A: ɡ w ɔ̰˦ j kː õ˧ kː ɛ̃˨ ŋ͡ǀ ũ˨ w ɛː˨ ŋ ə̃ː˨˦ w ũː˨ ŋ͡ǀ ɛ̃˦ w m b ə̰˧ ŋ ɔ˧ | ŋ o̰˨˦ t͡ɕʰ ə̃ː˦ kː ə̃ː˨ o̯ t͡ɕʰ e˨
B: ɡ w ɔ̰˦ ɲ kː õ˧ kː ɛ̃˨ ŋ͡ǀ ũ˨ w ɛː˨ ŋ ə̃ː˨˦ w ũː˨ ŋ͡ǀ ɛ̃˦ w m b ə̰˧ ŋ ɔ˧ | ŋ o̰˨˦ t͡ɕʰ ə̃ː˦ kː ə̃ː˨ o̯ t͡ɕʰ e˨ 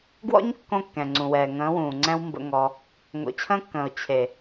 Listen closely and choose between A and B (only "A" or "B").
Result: B